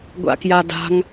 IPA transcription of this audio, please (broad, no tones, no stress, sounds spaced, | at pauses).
ɡʷ a̰ k j a d a̤ ŋ